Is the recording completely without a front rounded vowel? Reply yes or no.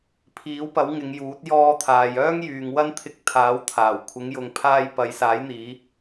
no